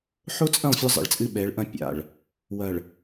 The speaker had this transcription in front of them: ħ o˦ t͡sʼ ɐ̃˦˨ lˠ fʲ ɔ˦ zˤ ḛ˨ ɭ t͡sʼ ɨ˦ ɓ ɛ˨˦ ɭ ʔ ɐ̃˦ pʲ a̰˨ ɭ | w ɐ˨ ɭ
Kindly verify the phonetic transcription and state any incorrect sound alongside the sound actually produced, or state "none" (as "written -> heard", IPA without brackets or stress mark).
none